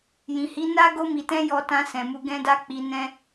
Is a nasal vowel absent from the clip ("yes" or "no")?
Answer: no